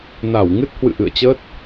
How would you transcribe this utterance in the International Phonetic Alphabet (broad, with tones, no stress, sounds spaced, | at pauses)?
n a˧˩ w ŋ ɨ˦˥ t̚ h w ɨ̰˧˨ ʔ ɨ̰˧˨ ə̯ t͡ɕ əː˦˥ t̚